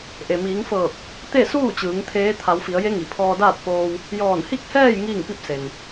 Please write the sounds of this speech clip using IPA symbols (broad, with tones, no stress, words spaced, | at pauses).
ʔe˩miː˩˧ŋfɤː˧˩k̚ | t̪e˥˨ suː˥˨t͡ɕɯː˩˧ŋ t̪ʰeː˧˥ t̪ʰa˩˧wfi˩˧ə̯ je˧˥ŋi˩ pʰɔː˧daː˥˨t̚foː˧w | jɔː˧˩nhi˥˨k̚hɛː˥˨j ŋiː˥˨ŋpi˥˨p̚ se˩n